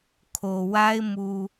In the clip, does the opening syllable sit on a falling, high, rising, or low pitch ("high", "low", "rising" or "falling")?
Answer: low